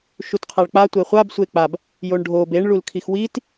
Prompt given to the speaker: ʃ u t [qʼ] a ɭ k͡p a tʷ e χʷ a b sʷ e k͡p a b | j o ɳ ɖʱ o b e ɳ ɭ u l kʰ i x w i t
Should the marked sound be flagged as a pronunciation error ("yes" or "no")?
yes